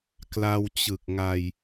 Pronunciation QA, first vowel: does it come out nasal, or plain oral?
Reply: oral